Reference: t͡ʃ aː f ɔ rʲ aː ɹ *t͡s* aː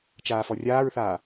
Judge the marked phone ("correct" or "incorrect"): incorrect